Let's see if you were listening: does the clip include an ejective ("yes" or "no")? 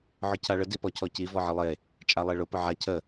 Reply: yes